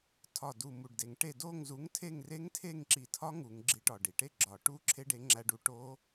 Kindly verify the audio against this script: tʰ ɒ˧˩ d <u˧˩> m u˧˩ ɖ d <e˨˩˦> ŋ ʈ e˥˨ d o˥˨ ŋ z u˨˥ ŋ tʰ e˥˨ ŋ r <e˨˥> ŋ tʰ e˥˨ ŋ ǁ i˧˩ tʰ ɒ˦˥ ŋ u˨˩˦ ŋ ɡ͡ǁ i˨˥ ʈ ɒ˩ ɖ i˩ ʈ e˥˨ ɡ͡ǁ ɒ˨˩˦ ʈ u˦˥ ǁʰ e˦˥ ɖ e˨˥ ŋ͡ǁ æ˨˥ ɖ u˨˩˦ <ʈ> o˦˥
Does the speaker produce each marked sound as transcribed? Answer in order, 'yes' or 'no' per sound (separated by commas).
yes, yes, no, yes